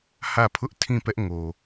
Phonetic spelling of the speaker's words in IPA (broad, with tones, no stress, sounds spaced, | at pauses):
h ä˦˨ pʰ ʊ˦ ʔ tʰ ĩ˦˨ p ɛ˦ ʔ ŋ o˨